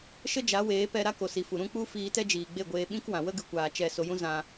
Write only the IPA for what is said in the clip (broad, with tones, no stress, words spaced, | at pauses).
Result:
ʃə˦d͡ʒa˨˦weː˨˦ pɛ˧ɾa˦ ko˨si˨fu˨ ɾũ˦k͡pu˦ fiː˧tɛ˦d͡ʒiː˨ ɡ͡be˦˨ɡʷeː˧ɓĩ˦kwã˨ wə˦ɡɨ˨kʷaː˨ t͡ʃɛ˨ so˧jũ˦ zã˧